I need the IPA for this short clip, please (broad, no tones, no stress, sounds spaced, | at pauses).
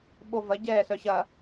ɓ o v ɐ ɟ ɛː s œ ɕ ɐ